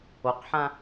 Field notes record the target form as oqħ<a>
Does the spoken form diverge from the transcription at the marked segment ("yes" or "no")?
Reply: yes